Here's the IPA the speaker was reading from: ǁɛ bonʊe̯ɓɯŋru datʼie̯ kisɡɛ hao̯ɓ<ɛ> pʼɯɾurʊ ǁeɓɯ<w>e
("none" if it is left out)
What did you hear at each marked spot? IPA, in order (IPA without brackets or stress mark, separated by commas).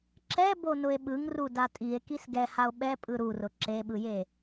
ɛ, j